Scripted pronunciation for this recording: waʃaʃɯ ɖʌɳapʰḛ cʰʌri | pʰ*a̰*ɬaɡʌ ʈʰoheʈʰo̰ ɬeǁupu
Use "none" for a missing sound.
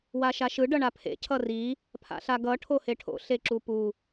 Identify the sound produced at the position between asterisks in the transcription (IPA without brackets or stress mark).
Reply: a̰